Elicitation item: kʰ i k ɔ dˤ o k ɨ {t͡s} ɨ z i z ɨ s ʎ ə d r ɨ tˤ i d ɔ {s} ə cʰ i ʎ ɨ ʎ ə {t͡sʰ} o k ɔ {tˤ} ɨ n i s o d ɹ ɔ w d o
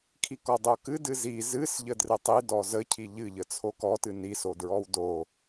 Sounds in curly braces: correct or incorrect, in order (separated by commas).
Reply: incorrect, incorrect, correct, incorrect